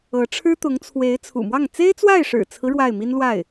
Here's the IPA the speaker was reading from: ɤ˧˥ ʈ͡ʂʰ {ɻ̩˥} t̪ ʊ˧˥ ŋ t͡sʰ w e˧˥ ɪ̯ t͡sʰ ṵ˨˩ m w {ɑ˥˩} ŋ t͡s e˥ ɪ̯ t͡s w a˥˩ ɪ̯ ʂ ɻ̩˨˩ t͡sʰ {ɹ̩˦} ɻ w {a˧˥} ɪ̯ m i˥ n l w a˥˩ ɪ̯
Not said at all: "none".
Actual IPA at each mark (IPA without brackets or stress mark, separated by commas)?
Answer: ɻ̩˥, ɑ˥˩, ɹ̩˦, a˥˩